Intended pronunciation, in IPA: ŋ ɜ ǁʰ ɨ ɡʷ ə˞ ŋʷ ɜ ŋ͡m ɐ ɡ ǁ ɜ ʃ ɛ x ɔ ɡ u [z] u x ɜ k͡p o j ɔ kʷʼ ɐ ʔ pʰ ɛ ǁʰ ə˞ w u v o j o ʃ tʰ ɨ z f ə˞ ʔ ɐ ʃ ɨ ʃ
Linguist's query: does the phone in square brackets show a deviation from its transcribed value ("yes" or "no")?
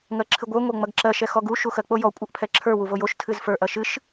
yes